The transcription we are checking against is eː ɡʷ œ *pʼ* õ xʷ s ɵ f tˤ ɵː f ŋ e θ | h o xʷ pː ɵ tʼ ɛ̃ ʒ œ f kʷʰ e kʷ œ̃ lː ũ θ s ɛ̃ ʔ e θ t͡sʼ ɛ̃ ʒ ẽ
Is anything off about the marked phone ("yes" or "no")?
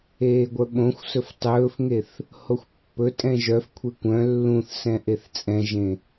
yes